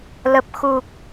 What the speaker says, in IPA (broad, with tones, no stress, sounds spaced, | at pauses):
l ə˨˩ p̚ x u˨˩ k̚